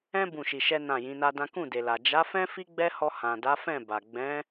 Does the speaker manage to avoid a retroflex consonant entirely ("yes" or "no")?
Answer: yes